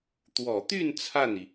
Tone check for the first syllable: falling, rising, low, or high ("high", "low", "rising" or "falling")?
low